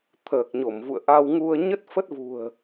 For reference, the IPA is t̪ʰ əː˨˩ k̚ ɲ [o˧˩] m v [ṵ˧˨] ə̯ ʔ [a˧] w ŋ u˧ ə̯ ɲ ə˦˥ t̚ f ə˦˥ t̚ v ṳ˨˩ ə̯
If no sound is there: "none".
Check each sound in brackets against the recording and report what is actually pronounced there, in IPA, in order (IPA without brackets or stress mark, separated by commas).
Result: o˧˩, ṵ˧˨, a˧